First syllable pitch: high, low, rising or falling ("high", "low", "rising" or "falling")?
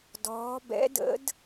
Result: rising